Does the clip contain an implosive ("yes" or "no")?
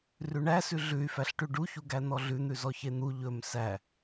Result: no